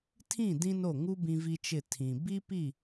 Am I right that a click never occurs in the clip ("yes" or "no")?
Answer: yes